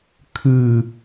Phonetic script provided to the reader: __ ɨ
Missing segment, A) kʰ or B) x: A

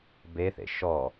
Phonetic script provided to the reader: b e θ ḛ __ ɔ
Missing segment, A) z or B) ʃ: B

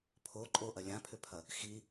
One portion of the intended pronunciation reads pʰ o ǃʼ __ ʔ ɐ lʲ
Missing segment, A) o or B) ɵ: A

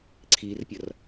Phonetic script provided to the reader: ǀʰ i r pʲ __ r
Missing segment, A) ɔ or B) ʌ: B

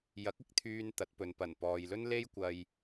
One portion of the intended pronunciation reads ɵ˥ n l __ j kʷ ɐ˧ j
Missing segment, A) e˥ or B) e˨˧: A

